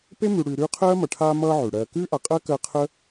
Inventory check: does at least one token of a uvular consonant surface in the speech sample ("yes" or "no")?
yes